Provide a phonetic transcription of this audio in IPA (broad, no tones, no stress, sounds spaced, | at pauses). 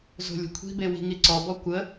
z o̤ lʲ ə̤ kʷʰ i̤ b e w i̤ ŋ i ǀ ɔ b ɔ kʷ ə